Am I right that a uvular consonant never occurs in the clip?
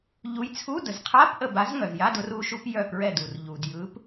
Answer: no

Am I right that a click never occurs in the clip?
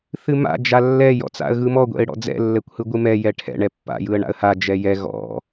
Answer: yes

